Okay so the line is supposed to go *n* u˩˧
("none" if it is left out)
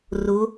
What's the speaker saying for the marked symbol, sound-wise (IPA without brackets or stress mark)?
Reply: r